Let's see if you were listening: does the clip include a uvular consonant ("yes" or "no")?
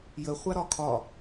yes